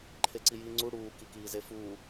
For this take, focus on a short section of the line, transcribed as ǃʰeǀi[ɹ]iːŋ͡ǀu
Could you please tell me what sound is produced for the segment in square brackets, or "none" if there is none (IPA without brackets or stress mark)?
j